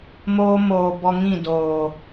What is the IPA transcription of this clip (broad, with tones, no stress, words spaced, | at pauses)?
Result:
moː˦ moː˨bɔ˧ŋĩ˦˨ doː˨